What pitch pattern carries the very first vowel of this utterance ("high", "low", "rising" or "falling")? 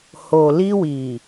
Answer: low